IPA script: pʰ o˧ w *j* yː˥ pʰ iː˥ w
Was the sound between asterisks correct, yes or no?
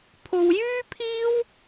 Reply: yes